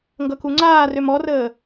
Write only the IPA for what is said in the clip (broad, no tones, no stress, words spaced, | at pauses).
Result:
ŋɡʌkuŋ͡ǀaːrøm ɔrəː